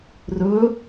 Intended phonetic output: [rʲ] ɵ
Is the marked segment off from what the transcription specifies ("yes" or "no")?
yes